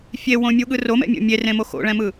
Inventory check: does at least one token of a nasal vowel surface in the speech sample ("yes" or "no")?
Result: yes